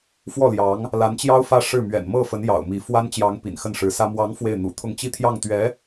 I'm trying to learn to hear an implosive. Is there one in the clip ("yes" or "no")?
no